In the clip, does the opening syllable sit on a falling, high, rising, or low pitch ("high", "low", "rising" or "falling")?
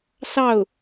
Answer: falling